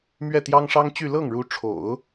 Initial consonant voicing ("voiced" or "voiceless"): voiced